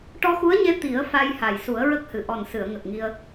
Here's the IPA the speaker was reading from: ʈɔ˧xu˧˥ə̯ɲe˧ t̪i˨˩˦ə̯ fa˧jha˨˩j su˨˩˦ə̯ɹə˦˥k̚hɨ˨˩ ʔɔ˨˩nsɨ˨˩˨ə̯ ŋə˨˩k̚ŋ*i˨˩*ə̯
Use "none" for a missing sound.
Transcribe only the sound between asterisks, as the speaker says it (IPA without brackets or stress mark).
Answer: i˧